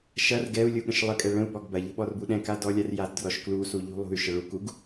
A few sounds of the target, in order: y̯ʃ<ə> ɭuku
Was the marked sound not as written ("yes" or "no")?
no